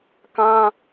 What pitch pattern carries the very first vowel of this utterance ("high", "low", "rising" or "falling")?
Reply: high